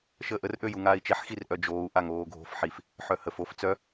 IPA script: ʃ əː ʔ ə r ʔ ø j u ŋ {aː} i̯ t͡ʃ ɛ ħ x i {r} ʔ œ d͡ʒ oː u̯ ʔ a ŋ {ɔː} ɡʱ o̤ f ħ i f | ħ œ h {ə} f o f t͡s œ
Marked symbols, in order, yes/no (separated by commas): yes, yes, no, yes